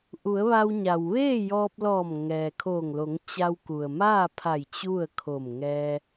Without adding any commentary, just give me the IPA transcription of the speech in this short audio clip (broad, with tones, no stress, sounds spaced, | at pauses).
ʔ u˩˧ ə̯ ʋ a˧ w ɲ a˩ w ʋ eː˥˨ j ɔː˧ p̚ l ɔː˧˩ m ŋ ɛː˩ kʰ oː˧˩ ŋ l o˩˧ ŋ t͡ɕ a˧ w k u˩ ə̯ m aː˥˨ pʰ a˧˩ j t͡ɕ u˥˨ ə̯ kʰ o˧˩ m ŋ ɛː˧